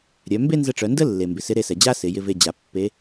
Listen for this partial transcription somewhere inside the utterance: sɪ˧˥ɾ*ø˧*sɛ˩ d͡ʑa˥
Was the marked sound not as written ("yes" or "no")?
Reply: yes